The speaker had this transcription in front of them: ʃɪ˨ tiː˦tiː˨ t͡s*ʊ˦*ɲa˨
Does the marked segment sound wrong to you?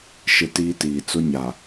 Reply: no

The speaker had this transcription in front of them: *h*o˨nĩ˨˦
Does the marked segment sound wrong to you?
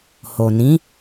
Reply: no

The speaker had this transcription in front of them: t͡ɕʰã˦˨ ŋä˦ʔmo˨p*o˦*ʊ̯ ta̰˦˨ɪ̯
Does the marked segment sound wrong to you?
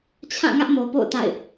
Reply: yes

